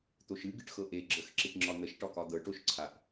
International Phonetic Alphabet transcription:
t̪ o ʃ ɨ ɡ ɨ ʈ x ɤ ʔ e ɡ͡ǁ ə x ǁ i ʈ ŋ͡ǁ ɒ n̪ ə ʃ ʈ ɒ k ɒ d̪ ɤ ʈ o ʃ ǀʰ a ʔ

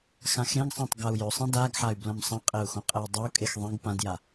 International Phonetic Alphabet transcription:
x ã x ɾ ẽ ɡ sˤ ã tˤ ɡ a u̯ j ɵ sˤ ẽ d a ɡ ħ a y̯ b l ɐ̃ m sˤ ɐ̃ qʼ e u̯ x õ qʼ e j dˤ ɐ u̯ kʼ e x ðˤ ẽ ɡ p ã d j a

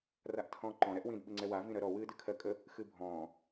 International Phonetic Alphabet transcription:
r a ʔ tʰ ɔ̃ː ǃ ɔ̃ ɾ ɛ ʔ w ĩ d ɓ ɨ ŋ͡ǀ ɛ w a v ĩ ɾ ɜ ɾ ɔ w ɨː d ɨ kʰ ɜ kʼ ə | x ɨ bʱ ɔ̃ː

